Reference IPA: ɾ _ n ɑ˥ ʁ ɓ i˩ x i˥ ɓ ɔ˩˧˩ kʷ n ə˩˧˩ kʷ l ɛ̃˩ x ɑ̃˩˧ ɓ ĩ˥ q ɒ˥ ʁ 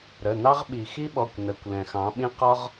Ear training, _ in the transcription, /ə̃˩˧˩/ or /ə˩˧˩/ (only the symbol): ə˩˧˩